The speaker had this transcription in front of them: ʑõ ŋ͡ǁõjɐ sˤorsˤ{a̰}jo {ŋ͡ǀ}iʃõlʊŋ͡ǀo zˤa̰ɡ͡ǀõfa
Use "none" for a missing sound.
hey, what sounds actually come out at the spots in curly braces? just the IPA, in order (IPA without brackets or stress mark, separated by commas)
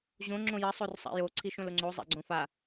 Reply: a̰, ǀʰ